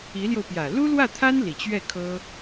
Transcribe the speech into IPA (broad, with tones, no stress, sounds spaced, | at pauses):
i˧˥ l j o˧ ʊ̯ p j ä˨˩ l u˥ l w ä˥˩ t̪ʰ a˥ n l i˨˩ t͡ɕ ɥ ɛ˥˩ kʰ ɤ˥